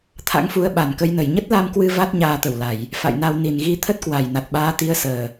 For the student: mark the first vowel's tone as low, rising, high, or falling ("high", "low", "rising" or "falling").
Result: rising